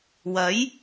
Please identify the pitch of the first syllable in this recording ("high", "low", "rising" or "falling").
rising